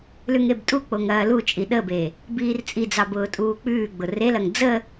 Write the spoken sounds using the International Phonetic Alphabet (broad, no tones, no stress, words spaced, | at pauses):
lʉŋebtʼuk͡poŋ ɐːlut͡ʃʼi ɗəbe | biːrt͡sʼid͡zɑb ʊːtʼuːk͡pʉːɡ͡bʊ relɐŋ d͡zə